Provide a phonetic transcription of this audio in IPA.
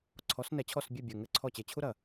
ǀʰ ɔ˨˥ s n ɛ˧˩˧ t͡ɕʰ ɔ˦˨ s bʲ e˦˨ bʲ ɘ˨˩ ŋ ɘ˧˩˧ ǀʰ ɔ˦˨ t͡ɕ e˨˩ t͡ɕʰ u˥ ɾ ɐ˨˩

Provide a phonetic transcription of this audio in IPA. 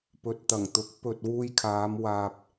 p ɵ˨ t̚ t̪ ɐ˨˩ ŋ t̪ ʊ˨˥ k̚ p ɵ˧ t̚ w uː˧ j kʰ aː˨˧ m w aː˧ p̚

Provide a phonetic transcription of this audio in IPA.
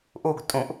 ʔ u ɡ tʼ ũ ʔ

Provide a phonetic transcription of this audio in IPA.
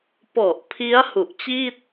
p ɔ˨˩ ʔ pʰ i˦˥ a̯ h u˨˩ ʔ t͡ɕ iː˥˩ t̚

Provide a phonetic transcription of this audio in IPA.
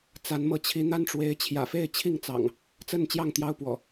t͡s a˨˦ n m ɤ˨˦ t͡ɕʰ i˨˦ n̪ a˦ n ʈ͡ʂ w e˨˦ ɪ̯ t͡ɕʰ j ä̰˨˩ f e˥˨ ɪ̯ t͡ɕʰ i˥˨ ŋ t͡s ɑ̰˨˩ ŋ | t͡s ə˥˨ n t͡ɕ j ɑ˥˨ ŋ t̪ j ɑ˦ ʊ̯ p w ɔ̰˨˩

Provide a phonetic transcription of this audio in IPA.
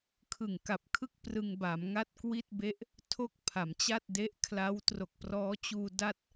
kʰ ɯ˨˩ ŋ k a˨˩ p̚ kʰ ɯ˥˩ k̚ p r ɯ˧ ŋ b a˩˦ m ŋ a˥˩ t̚ k w i˥˩ t̚ b e˦˥ ʔ | tʰ o˥˩ k̚ pʰ a˩˦ m t͡ɕ a˥˩ t̚ d e˦˥ ʔ kʰ l a˦˥ w t r o˨˩ k̚ p r ɔː˦˥ t͡ɕ uː˧ d a˥˩ t̚

